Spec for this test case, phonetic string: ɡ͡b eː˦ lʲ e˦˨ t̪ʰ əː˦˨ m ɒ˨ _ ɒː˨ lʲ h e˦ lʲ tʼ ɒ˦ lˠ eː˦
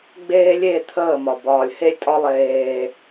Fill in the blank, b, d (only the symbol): b